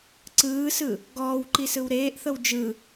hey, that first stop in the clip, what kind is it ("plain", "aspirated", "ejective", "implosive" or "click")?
click